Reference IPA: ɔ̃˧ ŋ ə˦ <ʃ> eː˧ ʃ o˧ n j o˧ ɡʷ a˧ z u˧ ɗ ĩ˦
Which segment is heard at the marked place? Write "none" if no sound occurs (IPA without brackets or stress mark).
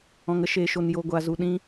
ʃ